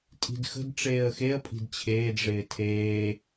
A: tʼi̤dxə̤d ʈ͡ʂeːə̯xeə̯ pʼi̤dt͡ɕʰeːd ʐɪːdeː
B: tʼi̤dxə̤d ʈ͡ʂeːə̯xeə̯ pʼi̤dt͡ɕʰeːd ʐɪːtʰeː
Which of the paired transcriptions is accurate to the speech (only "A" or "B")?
B